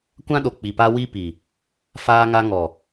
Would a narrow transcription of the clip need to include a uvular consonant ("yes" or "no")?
no